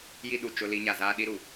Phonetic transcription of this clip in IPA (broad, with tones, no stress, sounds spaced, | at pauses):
j i˦ ɗ u˨ t͡ʃ ʊ˦ l i˦ ɲ a˨ z aː˦ ɗ i˦ ɾ u˨